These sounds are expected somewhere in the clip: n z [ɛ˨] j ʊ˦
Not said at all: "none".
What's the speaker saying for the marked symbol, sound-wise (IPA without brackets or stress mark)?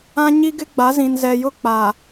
ɛ˨